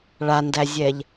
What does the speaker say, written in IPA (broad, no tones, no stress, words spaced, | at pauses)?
ɭandæzʲɛʎ